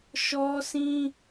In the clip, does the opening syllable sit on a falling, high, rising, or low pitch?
high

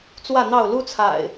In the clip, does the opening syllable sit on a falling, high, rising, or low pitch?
falling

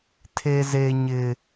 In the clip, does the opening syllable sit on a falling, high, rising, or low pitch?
high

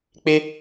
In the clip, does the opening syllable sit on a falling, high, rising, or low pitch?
high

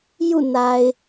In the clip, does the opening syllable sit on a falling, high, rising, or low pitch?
falling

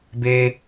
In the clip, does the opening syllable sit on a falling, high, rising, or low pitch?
high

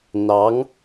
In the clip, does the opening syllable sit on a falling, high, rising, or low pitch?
rising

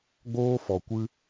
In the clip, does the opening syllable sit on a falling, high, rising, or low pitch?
high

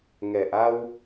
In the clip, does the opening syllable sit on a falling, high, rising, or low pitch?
low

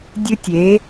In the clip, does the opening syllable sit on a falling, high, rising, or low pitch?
high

